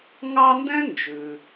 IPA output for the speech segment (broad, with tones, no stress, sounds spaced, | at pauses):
ŋ ɑ˦ n d ɛ̃˥ n d͡ʒ ʉ˩